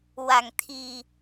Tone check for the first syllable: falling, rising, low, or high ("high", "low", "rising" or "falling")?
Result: low